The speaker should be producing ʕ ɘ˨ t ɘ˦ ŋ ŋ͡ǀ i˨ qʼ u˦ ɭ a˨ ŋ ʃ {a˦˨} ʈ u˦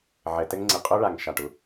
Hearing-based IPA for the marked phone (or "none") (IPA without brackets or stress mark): a˦˨